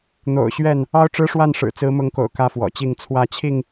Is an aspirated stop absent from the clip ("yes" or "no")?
no